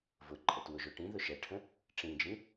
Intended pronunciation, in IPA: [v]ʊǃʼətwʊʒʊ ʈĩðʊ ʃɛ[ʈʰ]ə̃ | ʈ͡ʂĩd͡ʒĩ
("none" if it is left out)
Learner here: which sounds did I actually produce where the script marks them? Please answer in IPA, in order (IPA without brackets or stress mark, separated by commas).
v, ʈʰ